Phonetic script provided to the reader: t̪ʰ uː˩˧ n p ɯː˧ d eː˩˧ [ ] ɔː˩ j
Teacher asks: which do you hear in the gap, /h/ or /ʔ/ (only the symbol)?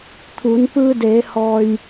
h